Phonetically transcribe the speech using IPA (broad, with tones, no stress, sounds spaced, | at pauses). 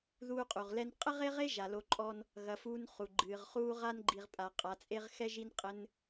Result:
ð uː˦ qʼ u˩ ʁ l ɛ˦ n qʼ ɘ˥ ʁ e˥ ʁ e˥ ʒ a˩ l o˨ ǃʼ ɔ˦ n | ɣ ɐ˨ f uː˦ n χ u˩ ɡ͡ǃ ɨː˩ ʁ χ uː˦ ʁ a˥ n ɡ͡ǃ i˨ ʁ pʼ a˩ qʼ a˨ t͡sʼ e˦ ʁ x ɛ˥ ʒ i˦ n qʼ ɘ˦ n